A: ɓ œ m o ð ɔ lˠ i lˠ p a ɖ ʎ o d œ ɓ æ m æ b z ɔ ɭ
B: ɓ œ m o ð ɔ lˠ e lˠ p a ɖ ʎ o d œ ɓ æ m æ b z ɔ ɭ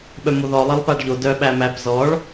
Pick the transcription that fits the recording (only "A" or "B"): B